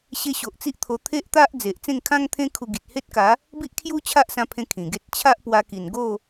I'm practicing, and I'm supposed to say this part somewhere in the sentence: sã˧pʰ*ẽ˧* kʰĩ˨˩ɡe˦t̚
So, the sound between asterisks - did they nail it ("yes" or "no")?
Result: yes